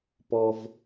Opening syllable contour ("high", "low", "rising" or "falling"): high